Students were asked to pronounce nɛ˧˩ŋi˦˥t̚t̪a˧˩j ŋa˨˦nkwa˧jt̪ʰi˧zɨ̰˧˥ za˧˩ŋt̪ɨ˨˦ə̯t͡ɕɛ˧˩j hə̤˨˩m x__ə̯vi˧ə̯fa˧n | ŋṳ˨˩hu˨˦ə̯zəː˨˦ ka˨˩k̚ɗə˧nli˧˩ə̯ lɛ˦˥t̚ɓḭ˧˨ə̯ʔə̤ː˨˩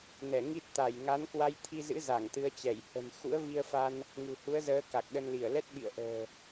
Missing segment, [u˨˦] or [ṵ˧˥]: ṵ˧˥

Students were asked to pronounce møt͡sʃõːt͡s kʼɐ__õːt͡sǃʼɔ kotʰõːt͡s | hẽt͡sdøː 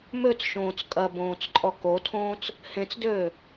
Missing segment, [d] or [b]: b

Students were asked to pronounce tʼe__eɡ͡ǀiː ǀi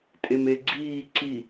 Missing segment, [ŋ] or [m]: m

